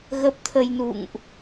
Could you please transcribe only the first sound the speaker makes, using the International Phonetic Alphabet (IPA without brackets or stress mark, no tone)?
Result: ɣ